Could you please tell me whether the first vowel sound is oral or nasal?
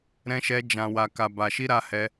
nasal